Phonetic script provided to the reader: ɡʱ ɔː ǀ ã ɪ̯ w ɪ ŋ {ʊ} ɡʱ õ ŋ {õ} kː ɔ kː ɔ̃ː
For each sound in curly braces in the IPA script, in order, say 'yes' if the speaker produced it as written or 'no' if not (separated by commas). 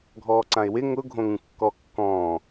yes, no